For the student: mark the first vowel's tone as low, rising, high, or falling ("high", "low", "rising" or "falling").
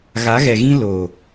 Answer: rising